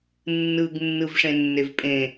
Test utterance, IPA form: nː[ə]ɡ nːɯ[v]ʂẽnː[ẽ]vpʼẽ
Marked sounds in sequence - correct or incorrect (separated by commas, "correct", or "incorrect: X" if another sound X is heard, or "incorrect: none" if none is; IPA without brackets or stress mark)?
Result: incorrect: ɯ, correct, incorrect: e